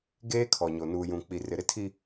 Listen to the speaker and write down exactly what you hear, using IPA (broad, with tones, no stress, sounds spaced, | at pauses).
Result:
ɡ eː˦ kʰ ɔ˨ ɲ o˨ n uː˨ j ũ˨ k͡p i˨ r ɪ˨ ɾ ɪ˦ tʰ i˦